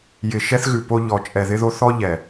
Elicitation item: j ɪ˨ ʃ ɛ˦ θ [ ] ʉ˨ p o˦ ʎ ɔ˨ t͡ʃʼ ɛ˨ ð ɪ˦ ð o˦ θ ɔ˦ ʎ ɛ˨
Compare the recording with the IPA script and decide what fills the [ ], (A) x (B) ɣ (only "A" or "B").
B